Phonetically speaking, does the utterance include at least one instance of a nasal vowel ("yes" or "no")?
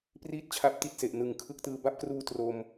no